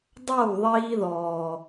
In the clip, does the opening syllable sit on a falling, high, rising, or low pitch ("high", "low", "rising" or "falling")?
falling